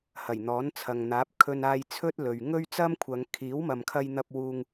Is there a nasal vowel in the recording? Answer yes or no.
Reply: no